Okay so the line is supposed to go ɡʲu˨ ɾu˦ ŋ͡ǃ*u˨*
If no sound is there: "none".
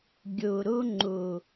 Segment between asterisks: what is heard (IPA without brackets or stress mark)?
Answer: u˨